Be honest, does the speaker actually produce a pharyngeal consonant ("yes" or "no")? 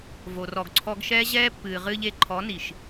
no